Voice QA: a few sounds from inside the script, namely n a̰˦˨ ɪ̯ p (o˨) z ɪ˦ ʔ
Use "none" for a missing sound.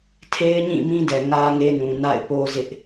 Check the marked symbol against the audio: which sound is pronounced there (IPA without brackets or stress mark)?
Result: o˦